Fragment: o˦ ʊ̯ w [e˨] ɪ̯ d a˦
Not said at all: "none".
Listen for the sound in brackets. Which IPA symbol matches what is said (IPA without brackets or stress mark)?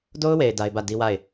e˨